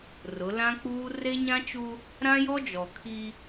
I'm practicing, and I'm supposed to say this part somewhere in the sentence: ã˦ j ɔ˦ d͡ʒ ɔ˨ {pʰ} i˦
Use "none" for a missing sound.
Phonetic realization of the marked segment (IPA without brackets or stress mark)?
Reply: kʰ